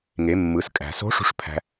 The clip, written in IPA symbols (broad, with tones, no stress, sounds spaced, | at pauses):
ŋ e˩˧ mː ɯ˩˧ s kʼ æ̤˩ s o̤˧˥ ʂ ṳ˧ ʂ pʰ æ̤˧